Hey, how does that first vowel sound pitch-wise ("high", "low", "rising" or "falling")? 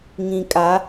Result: low